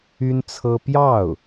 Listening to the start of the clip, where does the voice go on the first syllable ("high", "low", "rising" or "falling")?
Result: high